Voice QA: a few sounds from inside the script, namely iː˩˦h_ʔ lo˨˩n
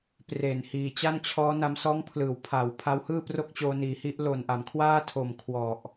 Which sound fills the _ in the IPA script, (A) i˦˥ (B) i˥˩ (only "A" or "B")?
A